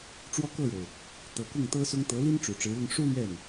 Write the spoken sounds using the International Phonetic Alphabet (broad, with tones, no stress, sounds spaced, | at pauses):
ʈ͡ʂ w ɔ˥˧ k ɤ˥˩ ɻ o˩ ʊ̯ | t̪ ɤ˧˥ k ʊ˥˩ ŋ t̪ ɤ˥ s ʊ˥ ŋ t̪ ɤ˧˥ l i˥ n ʈ͡ʂ u˨˩ ʈ͡ʂ ɻ̩˧˥ l ʊ˥˩ ŋ ʂ u˥ l ɥ ɛ˥˩ n